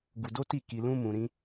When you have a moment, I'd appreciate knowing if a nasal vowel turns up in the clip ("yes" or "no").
yes